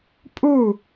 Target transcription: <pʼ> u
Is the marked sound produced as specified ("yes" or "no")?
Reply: yes